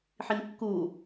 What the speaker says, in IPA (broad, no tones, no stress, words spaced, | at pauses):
ħinkːu